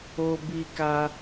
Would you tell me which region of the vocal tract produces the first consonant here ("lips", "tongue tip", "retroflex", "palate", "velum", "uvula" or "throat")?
lips